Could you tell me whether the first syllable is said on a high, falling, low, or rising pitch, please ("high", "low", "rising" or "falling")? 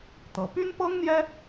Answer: rising